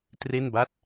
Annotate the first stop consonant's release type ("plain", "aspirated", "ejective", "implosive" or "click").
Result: plain